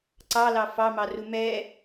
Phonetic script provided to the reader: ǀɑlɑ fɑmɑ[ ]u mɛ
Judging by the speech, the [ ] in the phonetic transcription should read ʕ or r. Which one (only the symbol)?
r